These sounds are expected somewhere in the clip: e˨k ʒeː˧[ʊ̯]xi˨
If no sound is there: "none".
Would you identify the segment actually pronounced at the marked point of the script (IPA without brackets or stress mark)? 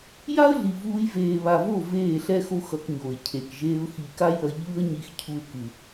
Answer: ʊ̯